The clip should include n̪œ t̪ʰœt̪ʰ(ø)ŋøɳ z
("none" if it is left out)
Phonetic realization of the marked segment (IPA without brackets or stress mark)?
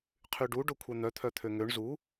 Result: ø